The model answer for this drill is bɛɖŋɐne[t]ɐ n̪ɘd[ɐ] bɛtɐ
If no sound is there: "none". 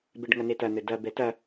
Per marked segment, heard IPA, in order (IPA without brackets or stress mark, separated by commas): t, ɐ